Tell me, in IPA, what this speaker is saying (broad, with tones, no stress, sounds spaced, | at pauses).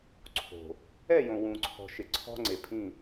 ǀʰ o̤˨ | ɛ˦˨ j õ˨ w ũ˨ ǀʰ ɔ̤˨ ʃ ɪ˨ ǀʰ ɔ̤˦ ŋ͡ǀ e˨ pʰ ĩ˦˨